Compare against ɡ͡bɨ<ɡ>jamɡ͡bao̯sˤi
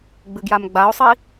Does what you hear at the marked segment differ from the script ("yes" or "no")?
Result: no